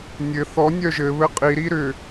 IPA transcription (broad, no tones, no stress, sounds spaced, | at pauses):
nʲ ɘ θ ɔ nʲ œ ʒ ɘ β ɘ qʼ i ɾ i ɾ ʏ